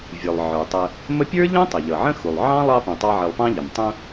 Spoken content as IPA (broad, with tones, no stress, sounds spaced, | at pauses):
vʲ ə˞˩ lˠ ʕ ə˞˩ tˤ ə˨ | m ə˦ pʲ ə˞˥ ʎ ə̃˥ tˤ ɪ˩ ʎ ʌ˩ ʕ ə̃˥ x u˩ lˠ ʕ ɑ̃˥ lˠ ɑ˦ p ũ˩ tˤ ɑ˦ ʕ ɪ˨ lˠ p ɑ̃˥ ʎ ɪ˩ m tˤ ũ˦